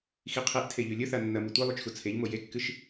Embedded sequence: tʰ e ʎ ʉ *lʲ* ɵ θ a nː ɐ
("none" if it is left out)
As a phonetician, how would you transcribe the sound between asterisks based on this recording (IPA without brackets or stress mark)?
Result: lʲ